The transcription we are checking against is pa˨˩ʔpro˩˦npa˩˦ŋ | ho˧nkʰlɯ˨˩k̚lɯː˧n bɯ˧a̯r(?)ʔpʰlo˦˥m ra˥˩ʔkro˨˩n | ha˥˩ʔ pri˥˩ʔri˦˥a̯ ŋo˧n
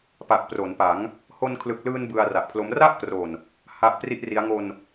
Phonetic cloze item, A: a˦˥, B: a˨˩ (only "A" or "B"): B